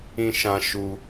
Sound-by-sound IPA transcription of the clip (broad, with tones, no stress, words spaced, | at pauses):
ĩ˧ʃã˧ ʃu˧